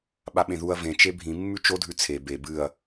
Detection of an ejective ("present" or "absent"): absent